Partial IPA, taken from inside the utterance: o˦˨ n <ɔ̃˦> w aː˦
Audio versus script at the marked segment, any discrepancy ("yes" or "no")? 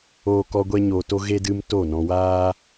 yes